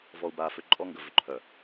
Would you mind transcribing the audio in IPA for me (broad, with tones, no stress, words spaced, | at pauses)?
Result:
vɔ˨u̯baː˨ fʏ˨ǃʼɔ˦ŋɡə˨ vʏ˨ǃʰœ˨